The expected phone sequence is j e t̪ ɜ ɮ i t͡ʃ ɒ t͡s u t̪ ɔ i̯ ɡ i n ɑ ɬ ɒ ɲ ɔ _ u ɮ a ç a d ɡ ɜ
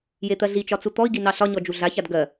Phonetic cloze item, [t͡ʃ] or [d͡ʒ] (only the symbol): d͡ʒ